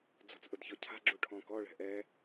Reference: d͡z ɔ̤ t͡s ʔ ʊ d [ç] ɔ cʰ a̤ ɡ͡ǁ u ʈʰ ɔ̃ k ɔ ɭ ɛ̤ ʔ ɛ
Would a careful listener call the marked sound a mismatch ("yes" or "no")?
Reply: no